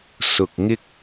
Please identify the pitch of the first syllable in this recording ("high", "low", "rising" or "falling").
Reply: low